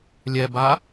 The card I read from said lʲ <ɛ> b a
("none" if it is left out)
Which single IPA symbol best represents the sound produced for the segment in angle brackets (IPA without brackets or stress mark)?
ɛ